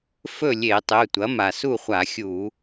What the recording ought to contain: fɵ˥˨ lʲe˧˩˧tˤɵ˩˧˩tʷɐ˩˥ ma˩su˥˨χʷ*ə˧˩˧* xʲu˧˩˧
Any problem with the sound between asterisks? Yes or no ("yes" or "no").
yes